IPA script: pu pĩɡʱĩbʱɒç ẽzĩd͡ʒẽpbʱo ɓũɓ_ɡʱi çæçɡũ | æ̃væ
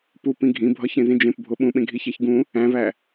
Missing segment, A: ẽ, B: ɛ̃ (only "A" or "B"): A